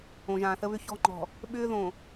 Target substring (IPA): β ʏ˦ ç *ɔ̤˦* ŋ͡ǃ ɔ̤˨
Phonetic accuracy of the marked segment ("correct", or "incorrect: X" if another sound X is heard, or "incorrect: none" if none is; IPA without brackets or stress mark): correct